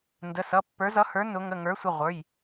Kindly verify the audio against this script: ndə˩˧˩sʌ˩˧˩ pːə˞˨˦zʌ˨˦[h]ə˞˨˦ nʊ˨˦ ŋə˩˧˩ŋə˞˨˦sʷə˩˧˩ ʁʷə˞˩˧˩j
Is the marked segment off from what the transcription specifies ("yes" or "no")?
no